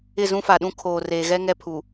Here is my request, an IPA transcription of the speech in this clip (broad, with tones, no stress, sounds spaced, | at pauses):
ɪ˦˨ z ũ˦ f a˨ ɗ ũ˦ kʰ oː˨ r eː˨ ɣ ɛ˦ ŋ ɛ˦ pʰ u˨